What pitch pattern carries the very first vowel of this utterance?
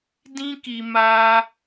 high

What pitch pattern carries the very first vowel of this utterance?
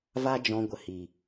high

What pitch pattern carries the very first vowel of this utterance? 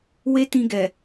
high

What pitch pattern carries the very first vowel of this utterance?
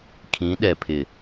rising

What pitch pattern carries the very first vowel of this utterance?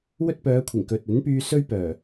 high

